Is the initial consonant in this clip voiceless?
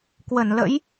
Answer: yes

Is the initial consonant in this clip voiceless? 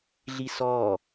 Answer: no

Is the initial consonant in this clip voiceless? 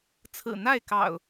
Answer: yes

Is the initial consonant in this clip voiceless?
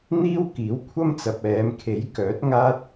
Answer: no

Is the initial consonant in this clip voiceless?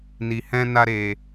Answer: no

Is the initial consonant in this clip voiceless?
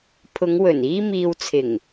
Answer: yes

